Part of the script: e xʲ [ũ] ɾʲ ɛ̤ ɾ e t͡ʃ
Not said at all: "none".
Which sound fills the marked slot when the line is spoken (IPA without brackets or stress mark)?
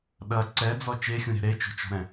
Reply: ũ